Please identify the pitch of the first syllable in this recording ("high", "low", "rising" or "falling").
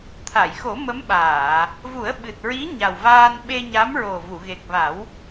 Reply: low